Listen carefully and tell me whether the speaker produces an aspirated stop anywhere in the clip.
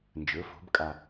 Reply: no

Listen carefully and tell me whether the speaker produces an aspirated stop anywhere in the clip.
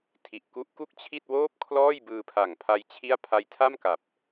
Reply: yes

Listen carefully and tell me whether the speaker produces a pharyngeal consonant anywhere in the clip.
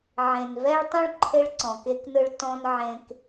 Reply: yes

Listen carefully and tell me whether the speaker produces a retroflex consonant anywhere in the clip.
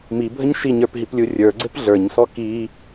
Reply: no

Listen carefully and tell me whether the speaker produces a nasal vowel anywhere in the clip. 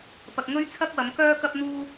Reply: no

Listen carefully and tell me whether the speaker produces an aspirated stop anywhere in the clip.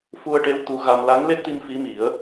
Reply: no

